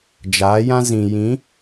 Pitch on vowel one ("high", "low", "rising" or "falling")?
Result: rising